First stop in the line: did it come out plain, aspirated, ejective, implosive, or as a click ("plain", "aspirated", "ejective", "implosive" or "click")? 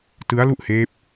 plain